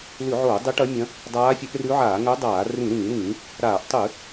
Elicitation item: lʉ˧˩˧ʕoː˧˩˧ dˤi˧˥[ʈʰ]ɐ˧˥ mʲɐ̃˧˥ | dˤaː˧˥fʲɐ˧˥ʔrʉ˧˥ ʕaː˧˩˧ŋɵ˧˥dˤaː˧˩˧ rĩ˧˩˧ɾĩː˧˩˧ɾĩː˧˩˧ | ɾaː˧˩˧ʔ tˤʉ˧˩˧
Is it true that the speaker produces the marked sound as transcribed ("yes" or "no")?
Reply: no